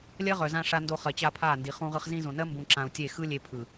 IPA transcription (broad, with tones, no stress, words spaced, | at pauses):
lʲɜ˦ʁœ˨zã˧ ʂa˧ndo˧χɜ˨t͡ɕa˧ pʰa˦˨ndi˨ χũ˧ʁɯ˧χ zĩ˧zõ˨nɜ˦ mbũ˧ǁã˧u̯tʲe˦˨ xɯ˦lʲe˧pʰɯ˨